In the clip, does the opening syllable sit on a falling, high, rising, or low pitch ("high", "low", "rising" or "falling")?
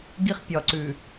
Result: high